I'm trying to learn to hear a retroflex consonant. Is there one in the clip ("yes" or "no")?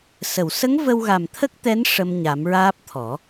yes